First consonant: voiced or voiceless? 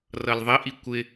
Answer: voiced